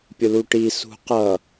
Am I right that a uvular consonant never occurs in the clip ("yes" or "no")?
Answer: no